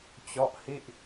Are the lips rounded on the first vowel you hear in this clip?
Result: yes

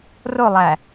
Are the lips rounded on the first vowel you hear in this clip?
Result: yes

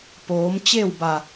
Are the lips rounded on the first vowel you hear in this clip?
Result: yes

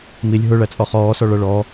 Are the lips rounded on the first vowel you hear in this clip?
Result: no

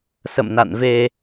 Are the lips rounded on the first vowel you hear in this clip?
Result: no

